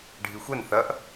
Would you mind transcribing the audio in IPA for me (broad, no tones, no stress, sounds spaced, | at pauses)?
ɖʱ i xʷ ɛ n θ ɐ ʔ